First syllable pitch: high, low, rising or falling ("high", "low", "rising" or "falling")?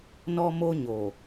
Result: high